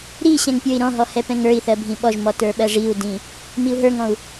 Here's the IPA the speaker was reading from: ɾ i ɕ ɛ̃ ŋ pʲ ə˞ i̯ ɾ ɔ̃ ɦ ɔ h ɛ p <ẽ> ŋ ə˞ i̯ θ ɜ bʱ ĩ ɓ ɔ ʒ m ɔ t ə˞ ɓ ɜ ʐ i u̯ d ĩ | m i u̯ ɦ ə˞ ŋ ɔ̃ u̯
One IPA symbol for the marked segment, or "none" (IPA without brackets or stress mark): ɛ̃